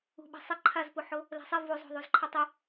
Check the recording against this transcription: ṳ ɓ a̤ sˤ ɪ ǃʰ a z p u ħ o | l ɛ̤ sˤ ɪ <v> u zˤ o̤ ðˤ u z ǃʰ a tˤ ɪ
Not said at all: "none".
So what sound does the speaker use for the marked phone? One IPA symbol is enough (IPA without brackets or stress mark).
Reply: v